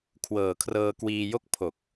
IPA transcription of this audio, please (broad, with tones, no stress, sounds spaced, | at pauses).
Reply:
kʰ w ɤː˨˩ kʰ r ɤː˧ k w iː˧ j o˥˩ k̚ pʰ o˨˩ k̚